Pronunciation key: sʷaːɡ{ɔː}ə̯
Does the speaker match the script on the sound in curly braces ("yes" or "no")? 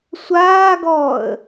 yes